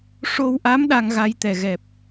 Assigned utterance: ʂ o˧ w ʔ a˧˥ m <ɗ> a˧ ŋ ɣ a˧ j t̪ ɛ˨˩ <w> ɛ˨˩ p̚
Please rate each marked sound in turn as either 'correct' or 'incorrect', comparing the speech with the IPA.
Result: correct, incorrect: ɣ

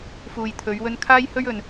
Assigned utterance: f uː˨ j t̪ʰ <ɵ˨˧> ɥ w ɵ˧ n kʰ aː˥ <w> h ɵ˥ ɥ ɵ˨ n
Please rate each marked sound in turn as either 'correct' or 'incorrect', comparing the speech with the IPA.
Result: correct, incorrect: j

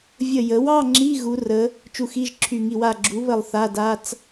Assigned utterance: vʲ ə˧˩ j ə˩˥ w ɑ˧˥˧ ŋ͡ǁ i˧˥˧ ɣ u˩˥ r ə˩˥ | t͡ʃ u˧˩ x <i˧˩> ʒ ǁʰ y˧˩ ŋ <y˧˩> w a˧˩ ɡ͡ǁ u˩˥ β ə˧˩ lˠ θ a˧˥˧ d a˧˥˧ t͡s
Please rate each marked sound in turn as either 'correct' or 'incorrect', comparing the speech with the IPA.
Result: incorrect: i˧˥˧, incorrect: i˧˩

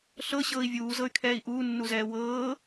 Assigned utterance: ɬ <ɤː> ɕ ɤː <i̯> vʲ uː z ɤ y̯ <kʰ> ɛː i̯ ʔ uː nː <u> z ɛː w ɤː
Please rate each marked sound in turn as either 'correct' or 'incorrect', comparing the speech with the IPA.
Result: incorrect: ɤ, correct, correct, correct

